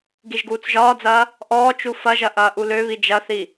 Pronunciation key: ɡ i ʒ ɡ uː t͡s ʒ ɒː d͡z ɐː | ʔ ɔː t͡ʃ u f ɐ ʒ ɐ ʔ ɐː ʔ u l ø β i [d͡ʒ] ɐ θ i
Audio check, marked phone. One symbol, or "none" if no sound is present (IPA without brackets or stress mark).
d͡ʒ